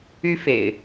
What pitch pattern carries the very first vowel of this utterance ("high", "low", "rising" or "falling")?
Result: high